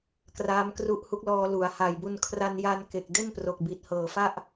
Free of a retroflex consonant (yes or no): yes